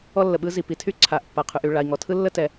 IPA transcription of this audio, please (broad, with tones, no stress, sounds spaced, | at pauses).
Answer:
ɔ˥ lː ə˩ ɓ ɯ˥ z i˩ p i˩ tʰ y˥ ǀʰ a˩ ʔ pː a˩ qʰ ʉ˩ ʔ y˩ ɭ a˩ i̯ ŋ ɔ˩ tʰ ɯ˥ lː ə˥ t ɛ˩